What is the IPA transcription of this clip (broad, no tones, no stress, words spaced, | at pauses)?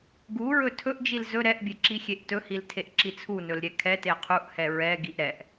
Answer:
ɡuɹɵ tʰɵʔd͡ʒil zɵ ɾɛʔbʲeǁixʲeʔ tɵhiltʰeʔǁi t͡sʰunɵlɾʲɛ kʰɛte qʰuʔhɛ ɹɛɡiʔ ɾɛʔ